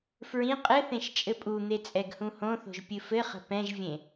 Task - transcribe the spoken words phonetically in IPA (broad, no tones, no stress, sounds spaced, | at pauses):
f ɹ ĩ qʼ ɘ θ ẽ ʃ t͡ʃʼ ɘ pʼ u n̪ e t͡sʼ ɛ ɡ h ũ h õ θ o̤ ʒ pʲ ɨ f ɘ χ ə̤ p ɛ̃ ʒ vʲ ẽ